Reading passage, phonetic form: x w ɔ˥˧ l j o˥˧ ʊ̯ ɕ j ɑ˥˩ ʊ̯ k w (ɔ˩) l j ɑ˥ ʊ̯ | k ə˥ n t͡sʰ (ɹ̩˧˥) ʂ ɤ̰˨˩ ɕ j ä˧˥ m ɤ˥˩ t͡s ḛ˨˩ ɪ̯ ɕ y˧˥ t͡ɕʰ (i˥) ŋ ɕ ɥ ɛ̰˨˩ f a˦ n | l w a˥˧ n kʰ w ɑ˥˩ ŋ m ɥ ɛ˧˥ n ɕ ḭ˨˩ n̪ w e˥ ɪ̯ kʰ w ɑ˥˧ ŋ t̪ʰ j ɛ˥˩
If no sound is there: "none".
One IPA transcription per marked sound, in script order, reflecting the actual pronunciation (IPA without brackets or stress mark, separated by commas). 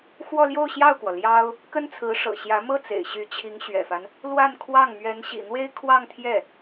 ɔ˩, ɹ̩˧˥, i˧˥